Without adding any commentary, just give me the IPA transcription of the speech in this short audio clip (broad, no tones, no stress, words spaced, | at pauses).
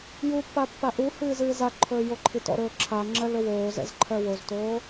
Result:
jupːa pːaʔuhɨː zɨːzaǃʰɵː joǃʰitɔ̰ɾɵː ǁʰaŋ͡ǁɜl ɵwoːzɛ̰z ǃʰɜwoztoː